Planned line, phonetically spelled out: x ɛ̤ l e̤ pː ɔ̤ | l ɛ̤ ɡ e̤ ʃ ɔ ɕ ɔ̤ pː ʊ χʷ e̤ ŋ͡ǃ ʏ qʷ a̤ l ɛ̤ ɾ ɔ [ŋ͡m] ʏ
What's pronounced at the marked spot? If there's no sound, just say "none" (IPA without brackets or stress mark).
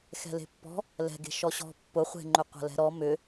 m